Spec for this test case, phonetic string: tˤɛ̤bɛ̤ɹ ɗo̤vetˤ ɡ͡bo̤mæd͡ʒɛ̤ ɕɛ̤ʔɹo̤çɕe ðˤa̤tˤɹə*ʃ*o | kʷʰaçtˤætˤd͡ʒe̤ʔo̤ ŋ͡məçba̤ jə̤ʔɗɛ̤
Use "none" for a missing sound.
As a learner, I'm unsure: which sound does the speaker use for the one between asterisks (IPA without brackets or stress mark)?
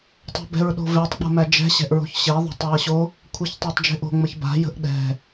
ɕ